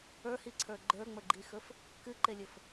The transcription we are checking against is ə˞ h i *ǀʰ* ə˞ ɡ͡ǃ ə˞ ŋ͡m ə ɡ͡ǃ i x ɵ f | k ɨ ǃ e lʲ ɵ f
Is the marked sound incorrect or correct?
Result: correct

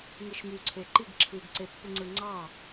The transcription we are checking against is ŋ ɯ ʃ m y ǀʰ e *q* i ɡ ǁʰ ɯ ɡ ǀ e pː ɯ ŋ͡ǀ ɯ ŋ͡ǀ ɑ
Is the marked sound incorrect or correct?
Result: incorrect: ǃ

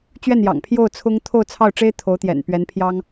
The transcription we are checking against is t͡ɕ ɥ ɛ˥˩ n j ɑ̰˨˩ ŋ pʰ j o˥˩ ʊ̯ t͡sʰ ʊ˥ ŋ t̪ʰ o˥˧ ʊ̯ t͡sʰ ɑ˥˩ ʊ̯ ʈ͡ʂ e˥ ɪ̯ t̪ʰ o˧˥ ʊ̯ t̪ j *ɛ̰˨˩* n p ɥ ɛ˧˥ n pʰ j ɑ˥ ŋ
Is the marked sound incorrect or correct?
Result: correct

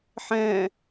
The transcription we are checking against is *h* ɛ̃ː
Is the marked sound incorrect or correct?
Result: incorrect: ħ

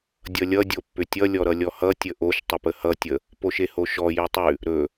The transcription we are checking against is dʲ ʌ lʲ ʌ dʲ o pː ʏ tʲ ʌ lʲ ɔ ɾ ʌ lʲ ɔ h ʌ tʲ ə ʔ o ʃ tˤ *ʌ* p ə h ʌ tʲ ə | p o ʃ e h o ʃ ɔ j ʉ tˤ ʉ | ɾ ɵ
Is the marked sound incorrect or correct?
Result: incorrect: ə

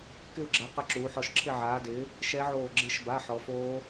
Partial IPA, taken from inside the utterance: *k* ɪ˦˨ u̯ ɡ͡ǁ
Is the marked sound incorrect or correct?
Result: correct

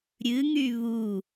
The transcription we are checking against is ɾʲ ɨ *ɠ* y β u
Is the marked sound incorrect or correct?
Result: incorrect: ŋ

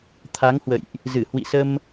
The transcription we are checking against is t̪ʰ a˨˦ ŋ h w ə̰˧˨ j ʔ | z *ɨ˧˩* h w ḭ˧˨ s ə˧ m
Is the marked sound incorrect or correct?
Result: correct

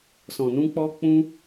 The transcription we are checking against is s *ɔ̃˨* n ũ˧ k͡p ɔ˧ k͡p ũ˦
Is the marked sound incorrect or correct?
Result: correct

